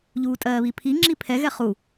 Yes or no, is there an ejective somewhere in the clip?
yes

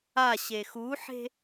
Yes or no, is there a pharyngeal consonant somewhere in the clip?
yes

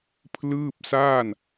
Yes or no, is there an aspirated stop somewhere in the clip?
yes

